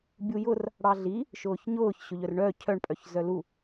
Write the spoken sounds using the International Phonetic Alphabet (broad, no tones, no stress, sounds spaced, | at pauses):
bʲ u j ʊ r | ɽ ɑ ɮ i | ʃ ʊː ç ɲ ʊː ç ɕ ʊ ʎ œ r ɳ œ cʰ œ ɳ pʼ œ ç z œ l u